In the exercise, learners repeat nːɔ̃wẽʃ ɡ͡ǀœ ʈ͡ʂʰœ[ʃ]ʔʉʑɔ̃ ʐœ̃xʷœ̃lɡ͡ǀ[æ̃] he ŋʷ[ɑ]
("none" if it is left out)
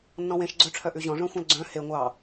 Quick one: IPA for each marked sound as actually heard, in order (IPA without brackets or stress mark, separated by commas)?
none, œ̃, ɑ